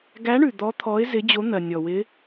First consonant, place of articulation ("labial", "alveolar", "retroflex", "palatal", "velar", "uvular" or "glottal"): velar